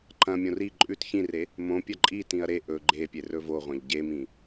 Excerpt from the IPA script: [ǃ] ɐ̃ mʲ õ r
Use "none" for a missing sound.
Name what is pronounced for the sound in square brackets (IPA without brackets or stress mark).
ǃ